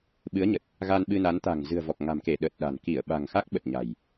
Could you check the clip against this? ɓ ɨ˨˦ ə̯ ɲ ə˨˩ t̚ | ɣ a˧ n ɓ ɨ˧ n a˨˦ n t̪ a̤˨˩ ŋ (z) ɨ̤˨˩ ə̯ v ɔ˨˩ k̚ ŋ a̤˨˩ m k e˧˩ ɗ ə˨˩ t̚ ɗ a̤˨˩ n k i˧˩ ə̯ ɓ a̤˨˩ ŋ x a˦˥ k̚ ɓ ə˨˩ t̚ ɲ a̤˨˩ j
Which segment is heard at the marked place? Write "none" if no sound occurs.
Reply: z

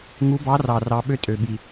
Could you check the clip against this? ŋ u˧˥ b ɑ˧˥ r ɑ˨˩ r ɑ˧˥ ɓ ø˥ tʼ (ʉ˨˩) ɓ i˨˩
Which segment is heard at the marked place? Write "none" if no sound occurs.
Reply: ø˨˩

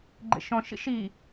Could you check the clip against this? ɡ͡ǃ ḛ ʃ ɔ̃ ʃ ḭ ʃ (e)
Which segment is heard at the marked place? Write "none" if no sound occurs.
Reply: i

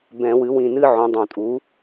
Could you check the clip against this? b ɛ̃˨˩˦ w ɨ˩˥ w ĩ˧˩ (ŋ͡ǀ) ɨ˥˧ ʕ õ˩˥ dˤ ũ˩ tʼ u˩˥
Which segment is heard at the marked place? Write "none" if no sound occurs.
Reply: n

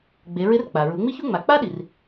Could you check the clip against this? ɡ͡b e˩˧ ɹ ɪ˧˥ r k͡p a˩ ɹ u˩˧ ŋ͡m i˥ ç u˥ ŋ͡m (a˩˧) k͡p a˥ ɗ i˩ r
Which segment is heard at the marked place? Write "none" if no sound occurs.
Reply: a˩˧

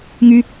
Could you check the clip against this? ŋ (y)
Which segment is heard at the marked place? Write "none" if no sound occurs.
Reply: y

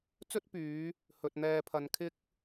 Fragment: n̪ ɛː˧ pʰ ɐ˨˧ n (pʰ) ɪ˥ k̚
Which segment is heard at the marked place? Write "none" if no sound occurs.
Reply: kʰ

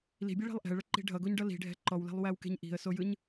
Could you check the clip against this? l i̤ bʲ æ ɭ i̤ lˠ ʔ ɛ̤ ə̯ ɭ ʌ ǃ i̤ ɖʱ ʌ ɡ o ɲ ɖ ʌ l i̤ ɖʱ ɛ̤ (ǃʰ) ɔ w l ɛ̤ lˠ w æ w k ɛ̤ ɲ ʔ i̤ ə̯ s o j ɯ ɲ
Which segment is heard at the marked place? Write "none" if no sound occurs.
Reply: ǃ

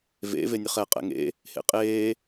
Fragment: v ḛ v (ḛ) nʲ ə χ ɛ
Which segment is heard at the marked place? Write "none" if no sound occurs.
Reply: e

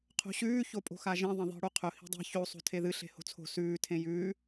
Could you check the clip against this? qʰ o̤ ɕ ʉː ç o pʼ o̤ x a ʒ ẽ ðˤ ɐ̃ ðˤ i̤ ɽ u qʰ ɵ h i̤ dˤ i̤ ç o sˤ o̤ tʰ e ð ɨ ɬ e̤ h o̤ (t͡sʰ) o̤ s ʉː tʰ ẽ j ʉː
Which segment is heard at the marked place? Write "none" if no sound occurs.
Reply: t͡sʰ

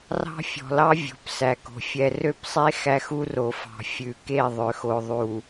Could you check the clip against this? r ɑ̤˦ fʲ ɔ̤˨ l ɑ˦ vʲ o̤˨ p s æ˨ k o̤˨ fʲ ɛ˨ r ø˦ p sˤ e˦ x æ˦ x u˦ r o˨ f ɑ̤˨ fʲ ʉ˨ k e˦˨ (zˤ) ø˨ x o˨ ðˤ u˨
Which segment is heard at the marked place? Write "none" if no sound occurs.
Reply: ðˤ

